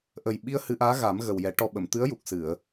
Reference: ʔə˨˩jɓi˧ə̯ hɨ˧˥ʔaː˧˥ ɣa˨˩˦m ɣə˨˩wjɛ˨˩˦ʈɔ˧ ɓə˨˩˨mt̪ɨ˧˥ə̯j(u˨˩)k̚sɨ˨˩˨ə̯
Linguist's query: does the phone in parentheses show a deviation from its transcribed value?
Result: no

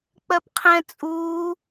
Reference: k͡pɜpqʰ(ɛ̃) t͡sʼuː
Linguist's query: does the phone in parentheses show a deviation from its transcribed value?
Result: no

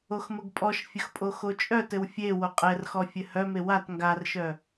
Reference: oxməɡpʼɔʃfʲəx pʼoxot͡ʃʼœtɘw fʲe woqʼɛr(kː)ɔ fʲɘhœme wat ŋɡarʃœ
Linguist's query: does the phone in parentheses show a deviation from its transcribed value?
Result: yes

